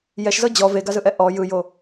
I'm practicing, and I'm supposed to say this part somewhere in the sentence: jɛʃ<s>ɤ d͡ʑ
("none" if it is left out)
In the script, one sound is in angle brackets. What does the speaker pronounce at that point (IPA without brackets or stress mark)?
z